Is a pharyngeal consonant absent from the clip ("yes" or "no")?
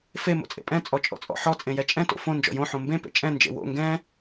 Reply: no